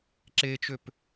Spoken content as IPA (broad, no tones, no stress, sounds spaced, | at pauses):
ǁ e t͡ʃ ø p